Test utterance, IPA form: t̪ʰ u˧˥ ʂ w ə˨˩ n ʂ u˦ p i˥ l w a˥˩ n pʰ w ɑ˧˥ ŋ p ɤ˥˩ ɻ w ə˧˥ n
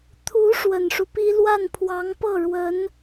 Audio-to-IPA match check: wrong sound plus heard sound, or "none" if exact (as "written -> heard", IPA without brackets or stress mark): none